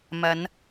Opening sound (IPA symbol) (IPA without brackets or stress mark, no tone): m